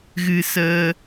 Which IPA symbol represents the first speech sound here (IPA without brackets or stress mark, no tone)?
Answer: ɣ